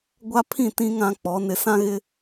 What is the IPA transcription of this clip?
ɡʷa˦pʰĩ˦˨tĩ˦ ŋã˦k͡pɔ˨˦ nɪ˨sã˦ɣɪ˦

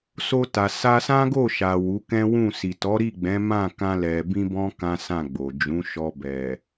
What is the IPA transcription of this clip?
so˧ta˨ sa˧sã˦ɡo˦˨ʃa˨ wu˨˦kɛ̃˦wũ˦˨ si˨tɔ˨˦ɾi˦˨ ɡ͡bɛ̃˨˦mã˦˨ kã˧lɛ˨ bĩ˧bɔ̃˧ kã˦sã˦˨ɡ͡bo˨ d͡ʒũ˨˦ʃɔ˧ bɛ˨

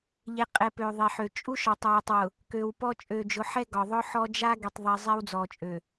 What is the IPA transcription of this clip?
ʎe˨qʼɛ˨ pø˨ðˤe˨ħø˨ t͡ʃʼu˦ʃɒ˨tˤwe˨tˤ wʊ˨ | kø˨wpɔ˦ t͡ʃʼø˨d͡ʒʊ˨˦ħɛ˦ ɡɒ˨ðˤʊ˦ħɔ˦ d͡ʒa˦ɡe˨tˤ ðˤi˨zˤɛ˦w d͡zɔ˨t͡ʃʼø˨

